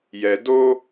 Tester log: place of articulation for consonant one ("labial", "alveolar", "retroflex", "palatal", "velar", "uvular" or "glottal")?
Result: palatal